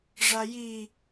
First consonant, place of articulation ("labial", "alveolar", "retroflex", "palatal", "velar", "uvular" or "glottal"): retroflex